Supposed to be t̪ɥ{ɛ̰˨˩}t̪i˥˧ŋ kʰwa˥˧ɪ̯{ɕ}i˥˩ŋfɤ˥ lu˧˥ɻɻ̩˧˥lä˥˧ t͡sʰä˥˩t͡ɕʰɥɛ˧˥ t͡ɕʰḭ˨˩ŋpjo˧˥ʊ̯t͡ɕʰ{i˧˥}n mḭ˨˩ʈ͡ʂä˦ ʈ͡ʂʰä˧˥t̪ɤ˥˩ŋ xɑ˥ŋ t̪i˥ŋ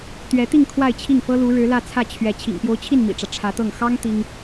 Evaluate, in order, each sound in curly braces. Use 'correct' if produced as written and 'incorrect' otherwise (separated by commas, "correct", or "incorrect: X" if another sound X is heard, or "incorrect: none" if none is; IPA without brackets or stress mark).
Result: incorrect: ɛ˧˥, incorrect: t͡ɕʰ, incorrect: i˥˩